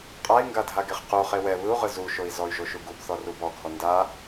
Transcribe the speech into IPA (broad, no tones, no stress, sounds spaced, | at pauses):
qʼ a i̯ ŋ ɡ a dʱ a ɡ e χ q u χ e w ɛ β ɯ u̯ ʁ ɯ z u ʃ o i̯ z ɔ y̯ ʒ o ʃ u ɡ u b θ ɔ r u b ɔ ɡʱ ɔ n d a